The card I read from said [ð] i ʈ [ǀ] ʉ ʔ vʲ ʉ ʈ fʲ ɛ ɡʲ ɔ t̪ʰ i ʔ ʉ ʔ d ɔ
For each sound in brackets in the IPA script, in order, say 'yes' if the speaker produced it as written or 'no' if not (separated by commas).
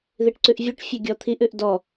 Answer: yes, yes